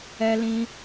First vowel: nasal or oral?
oral